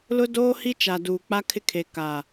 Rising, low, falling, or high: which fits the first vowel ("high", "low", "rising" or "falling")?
high